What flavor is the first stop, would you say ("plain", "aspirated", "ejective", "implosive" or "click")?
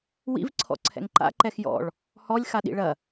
click